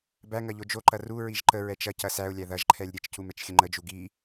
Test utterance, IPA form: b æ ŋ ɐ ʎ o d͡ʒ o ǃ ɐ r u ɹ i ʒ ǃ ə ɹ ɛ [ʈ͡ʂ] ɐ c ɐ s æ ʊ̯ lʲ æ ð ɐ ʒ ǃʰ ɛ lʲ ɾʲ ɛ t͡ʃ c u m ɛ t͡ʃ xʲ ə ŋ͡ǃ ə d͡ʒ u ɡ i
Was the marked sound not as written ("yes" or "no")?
yes